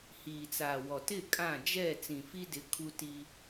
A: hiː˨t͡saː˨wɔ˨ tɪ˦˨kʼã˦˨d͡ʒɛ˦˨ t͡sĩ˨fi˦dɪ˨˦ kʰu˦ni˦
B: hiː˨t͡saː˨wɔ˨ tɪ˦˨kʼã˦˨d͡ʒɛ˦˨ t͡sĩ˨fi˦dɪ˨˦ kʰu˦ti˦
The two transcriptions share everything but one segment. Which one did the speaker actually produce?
B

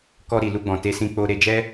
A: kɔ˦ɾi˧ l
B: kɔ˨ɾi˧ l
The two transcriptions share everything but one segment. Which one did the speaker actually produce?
A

